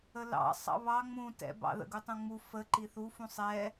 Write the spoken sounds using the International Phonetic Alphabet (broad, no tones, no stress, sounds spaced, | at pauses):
ə l ɑ̰ sˤ ɑ̰ β ɑ ŋ͡m ũ t ɛ̰ b ɑ̰ ð ə̰ ɡ u tˤ ũ ŋ͡m u f ə ǃ i θ u f ũ sˤ ɛ